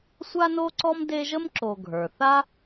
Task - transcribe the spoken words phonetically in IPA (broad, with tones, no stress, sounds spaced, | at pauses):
sʷ a˥ n o˥ ǀ ɔ˥ m d e˦ ʒ ə˥ m ǁ o˨ ɡʱ ə˞˩ θ a˥